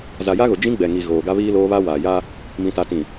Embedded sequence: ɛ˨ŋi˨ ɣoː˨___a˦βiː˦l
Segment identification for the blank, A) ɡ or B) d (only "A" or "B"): A